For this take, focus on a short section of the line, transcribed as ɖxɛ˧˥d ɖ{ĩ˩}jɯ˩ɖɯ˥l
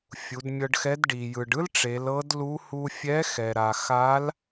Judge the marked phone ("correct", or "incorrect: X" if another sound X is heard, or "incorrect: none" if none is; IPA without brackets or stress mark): incorrect: i˩